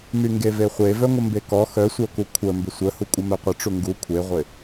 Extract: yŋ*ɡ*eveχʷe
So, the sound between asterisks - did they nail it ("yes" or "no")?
yes